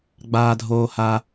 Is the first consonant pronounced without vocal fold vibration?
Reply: no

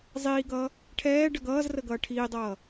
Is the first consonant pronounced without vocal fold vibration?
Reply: no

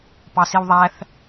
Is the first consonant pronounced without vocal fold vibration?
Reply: yes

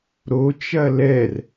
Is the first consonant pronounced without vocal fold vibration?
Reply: no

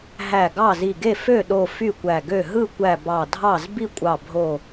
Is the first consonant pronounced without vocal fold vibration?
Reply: no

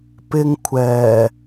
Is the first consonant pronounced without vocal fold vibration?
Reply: yes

